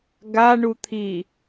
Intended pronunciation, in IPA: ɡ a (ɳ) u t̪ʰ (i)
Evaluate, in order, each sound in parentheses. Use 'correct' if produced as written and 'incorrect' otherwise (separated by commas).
correct, correct